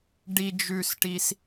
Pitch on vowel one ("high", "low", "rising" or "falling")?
low